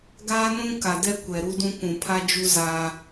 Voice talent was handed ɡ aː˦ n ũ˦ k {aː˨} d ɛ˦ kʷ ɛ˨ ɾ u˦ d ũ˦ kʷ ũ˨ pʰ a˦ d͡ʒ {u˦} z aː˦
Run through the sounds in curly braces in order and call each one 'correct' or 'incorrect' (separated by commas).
incorrect, correct